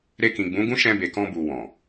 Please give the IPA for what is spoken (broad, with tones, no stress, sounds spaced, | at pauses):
ɾ e˧ k ĩ˨ ɡ͡b ũ˨˦ ɡ ũ˦ ʃ ɛ̃˧ b e˨ k ɔ̃˧ b u˨ w ɔ̃˨